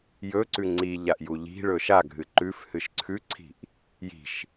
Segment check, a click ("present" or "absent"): present